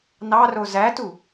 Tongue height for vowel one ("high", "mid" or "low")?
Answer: low